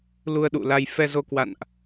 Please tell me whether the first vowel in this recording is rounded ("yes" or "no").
yes